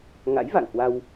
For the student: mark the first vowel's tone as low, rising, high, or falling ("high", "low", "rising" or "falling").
rising